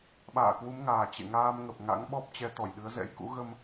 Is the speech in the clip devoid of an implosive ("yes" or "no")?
no